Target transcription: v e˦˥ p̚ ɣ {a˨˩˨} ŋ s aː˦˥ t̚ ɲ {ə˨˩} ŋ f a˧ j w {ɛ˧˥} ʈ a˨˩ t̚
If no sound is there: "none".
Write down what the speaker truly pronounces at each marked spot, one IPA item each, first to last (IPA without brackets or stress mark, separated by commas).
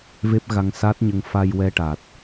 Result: a˧, ə˧, ɛ˧